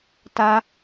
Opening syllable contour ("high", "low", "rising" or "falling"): high